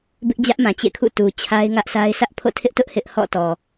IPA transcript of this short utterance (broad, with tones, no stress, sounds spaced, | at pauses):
b ɪ˦ ʔ d͡ʑ ä˦ ʔ m ã˨ t͡ɕ ḛ˦˨ kʰ ṵ˦˨ t u˨ t͡ɕʰ a˦ ɪ̯ ŋ ä˦ ʔ sʰ a˦ ɪ̯ s ä˦ ʔ pʰ o̰˦˨ tʰ ɪ˦ ʔ t ʊ˦ ʔ h ɪ˦ ʔ h ɔ̰˦˨ t ɔ˨